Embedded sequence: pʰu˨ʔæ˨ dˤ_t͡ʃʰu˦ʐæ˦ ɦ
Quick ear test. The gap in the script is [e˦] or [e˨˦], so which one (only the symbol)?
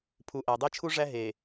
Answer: e˦